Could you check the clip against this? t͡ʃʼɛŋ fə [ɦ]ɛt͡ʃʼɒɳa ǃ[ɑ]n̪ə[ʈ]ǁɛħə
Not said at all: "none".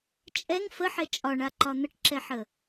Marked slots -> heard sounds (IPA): ħ, ɒ, ʈ

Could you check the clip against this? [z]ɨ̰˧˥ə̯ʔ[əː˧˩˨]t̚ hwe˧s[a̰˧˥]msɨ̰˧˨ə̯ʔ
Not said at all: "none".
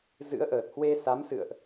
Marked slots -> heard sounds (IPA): z, əː˨˩, a˨˦

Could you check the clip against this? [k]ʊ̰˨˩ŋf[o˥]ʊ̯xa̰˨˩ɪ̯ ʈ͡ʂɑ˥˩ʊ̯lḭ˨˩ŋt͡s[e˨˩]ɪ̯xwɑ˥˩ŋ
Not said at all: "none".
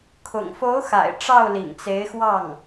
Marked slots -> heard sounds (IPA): kʰ, o˧˥, e˧˥

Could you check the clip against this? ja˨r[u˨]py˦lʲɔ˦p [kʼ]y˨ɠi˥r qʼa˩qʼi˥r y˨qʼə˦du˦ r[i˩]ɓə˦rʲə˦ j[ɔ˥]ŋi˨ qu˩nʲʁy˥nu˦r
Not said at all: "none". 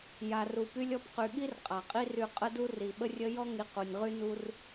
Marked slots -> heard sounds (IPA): u˨, q, i˩, ɔ˥

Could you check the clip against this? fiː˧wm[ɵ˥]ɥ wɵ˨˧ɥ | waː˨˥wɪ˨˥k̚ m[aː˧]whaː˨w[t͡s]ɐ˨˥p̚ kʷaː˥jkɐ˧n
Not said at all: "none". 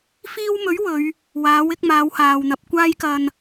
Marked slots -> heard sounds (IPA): ɵ˨˥, aː˨˧, n̪

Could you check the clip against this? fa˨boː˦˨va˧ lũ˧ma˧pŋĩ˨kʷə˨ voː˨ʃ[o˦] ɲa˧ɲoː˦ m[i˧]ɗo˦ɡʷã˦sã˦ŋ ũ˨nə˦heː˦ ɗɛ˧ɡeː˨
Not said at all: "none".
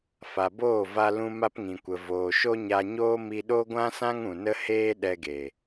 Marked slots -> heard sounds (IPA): o˦, i˧

